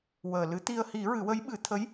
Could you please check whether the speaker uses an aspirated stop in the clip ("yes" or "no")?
yes